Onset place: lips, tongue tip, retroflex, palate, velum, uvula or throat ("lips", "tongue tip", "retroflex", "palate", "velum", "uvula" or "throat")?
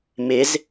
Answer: lips